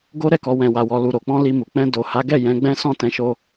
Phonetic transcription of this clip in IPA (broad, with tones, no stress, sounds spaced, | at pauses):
ɡ o˦ ɾ ɛ˦˨ k ɔ˨˦ w ɛ̃˧ w a˧ w ɔ˧ l u˨ ɾ o˨ k͡p ɔ̃˧ l i˧ m u˨ k͡p ɛ̃˧ d o˨ h a˨˦ ɡ ɛ˦˨ j ɛ̃˨˦ ɡ͡b ɛ̃˦ s ɔ̃˦˨ t ɛ̃˨˦ ʃ o˧